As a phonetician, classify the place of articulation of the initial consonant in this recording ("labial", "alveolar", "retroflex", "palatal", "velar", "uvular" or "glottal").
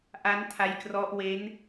glottal